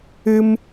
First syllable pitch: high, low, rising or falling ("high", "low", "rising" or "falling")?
high